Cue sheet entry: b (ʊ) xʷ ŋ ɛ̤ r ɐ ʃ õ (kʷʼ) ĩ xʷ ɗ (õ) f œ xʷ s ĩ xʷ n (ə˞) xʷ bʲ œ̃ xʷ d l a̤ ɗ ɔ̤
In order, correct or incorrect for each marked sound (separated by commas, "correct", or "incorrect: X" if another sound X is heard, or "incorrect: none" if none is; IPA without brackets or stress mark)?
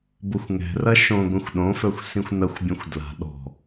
correct, incorrect: ɡʷ, correct, incorrect: ɐ